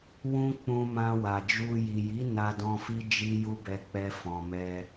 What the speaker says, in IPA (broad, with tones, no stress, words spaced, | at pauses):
wũ˧ k͡pũ˧mã˧ wa˨d͡ʒu˧ ji˨ji˨˦ na˧dɔ̃˧fi˦ d͡ʒi˦ju˦bɛ˧k͡pɛ˧ fɔ̃˨mɛ˧